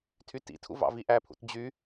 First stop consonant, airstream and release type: aspirated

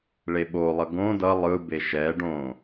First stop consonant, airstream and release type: implosive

